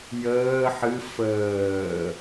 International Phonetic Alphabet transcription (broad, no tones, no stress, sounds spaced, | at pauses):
j əː ħ ɨ f əː